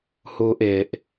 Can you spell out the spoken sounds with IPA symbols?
h uː ʔ ɪː ʔ

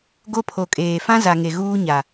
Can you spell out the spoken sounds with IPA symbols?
ɡ o˦ pʰ o˨ kʼ eː˨ f ã˦ z a˨ ŋ e˨ ɣ uː˦ ɲ a˨

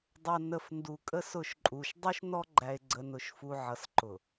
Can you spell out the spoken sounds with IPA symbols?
dˤ ʌ˨ n ə˨ f n d u˨ kʼ ə˦ s ʊ˦˨ ʃ ǃʼ u˨ ʃ dˤ u˦ ʃ n ɔ˦ ɡ͡ǃ æ˨ e̯ ɡ͡ǀ ə˨ n ʊ˨ ʃ f u˨ ʕ ʌ˨ s ǃ ʊ˨

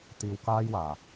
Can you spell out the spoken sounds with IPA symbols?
t̪ iː˧ w k aː˥ j w aː˨

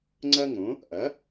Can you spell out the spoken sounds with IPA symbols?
ŋ͡ǀ ɐ˥ ŋ õ˩˥ | ʔ ɐ˩˥

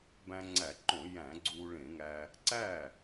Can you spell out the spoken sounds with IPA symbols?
b æ̃˧ ŋ͡ǀ æ˧˩˧ ǃ õ˧˩˧ j æ̃˧˩˧ ɡ͡ǀ uː˧ ɭ ẽ˧˩˧ ŋ æ˧ | ǀ æ˥˩

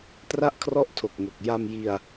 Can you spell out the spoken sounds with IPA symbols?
t r a˥˩ ʔ kʰ r ɔ˥˩ ʔ tʰ o˨˩ k̚ ŋ o˨˩ k̚ j a˧ m j i˧ a̯

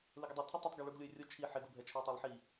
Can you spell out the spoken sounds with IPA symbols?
l ɪ ɡ ə dˤ æ tʰ ə tˤ ʊ tˤ ɡ ɛ ɭ u ɡ lʲ ʊ ɪ̯ rʲ ʊ t͡ʃʰ i ħ ɪ ɡ u bʱ ɛ t͡ʃʰ ɛ ɪ̯ tˤ æ lˠ ħ i

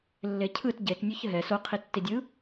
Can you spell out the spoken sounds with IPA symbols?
lː e cʰ ɯ t ɟ e t nʲ o ç ɦ ɛ s o qʰ i tː i dʲ ɯ

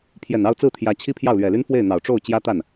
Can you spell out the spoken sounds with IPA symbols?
pʰ j ɛ˨˩ n ɑ˥˧ ʊ̯ t͡s ɹ̩˥˩ t̪ʰ j ä˧˥ t͡ɕʰ i˥ pʰ j ɑ˥˩ ʊ̯ l ɥ ɛ˨˩ l y˥ n f w e˥˩ ɪ̯ n̪ ɑ˨˩ ʊ̯ ʈ͡ʂ o˥˩ ʊ̯ t͡ɕ j ä˥ t̪ a˥˩ n

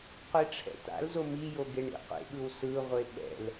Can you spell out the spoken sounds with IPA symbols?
qʷ i ʈ͡ʂʰ ɛ̰ t̪ a̰ l z o m i j o ɡ e ɳ ḭ qʷ ḛ ɠ ɯ w s ɯ ʁʷ e ɓ ɛ̰ l

